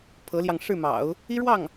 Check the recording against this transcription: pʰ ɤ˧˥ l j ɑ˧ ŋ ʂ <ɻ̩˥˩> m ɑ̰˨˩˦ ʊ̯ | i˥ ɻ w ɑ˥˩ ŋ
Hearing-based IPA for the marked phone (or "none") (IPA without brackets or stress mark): ɻ̩˥˩